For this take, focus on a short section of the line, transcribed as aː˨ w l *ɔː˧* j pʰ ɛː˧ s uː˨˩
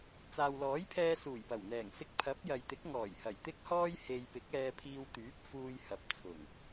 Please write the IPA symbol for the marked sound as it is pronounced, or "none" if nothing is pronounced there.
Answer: ɔː˨˥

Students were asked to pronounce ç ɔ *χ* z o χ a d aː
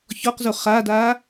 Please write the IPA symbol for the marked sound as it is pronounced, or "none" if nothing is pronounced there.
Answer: q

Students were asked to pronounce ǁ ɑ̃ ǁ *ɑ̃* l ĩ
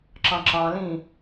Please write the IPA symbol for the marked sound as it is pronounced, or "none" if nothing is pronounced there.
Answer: ɑ̃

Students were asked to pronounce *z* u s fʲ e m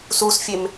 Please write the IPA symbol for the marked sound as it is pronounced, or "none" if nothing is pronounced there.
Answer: s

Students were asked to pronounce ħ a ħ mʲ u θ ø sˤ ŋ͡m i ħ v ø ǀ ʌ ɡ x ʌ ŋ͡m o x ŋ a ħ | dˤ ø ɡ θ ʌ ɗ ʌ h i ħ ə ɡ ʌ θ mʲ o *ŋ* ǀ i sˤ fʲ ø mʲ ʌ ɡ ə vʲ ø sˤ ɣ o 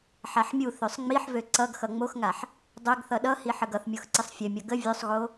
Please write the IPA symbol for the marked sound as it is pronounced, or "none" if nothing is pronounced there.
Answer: x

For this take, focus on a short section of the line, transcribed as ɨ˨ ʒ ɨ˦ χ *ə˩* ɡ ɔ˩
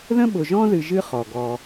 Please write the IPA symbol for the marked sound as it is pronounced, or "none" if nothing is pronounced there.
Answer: ɔ˩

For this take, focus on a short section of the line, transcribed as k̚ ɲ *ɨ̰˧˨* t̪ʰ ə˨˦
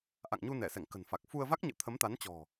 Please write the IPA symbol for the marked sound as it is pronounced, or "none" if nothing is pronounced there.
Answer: ɨ̰˧˨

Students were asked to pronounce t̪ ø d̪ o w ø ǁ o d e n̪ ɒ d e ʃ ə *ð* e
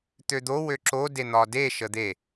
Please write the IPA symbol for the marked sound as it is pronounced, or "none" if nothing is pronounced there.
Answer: d̪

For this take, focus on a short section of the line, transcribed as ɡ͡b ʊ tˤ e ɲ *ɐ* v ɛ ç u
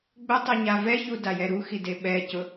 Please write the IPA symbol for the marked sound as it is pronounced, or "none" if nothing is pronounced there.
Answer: a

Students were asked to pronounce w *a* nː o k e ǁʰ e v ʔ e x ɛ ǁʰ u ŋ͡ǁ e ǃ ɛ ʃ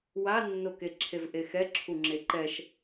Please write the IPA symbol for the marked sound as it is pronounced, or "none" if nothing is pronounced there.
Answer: a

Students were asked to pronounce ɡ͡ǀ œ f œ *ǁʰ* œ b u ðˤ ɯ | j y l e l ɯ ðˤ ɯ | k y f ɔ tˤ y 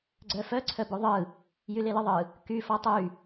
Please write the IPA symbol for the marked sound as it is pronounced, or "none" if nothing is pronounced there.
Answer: ǀʰ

